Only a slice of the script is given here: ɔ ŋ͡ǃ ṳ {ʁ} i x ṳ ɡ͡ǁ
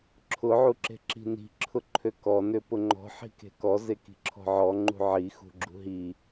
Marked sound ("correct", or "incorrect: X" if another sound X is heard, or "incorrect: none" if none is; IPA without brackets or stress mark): incorrect: ʕ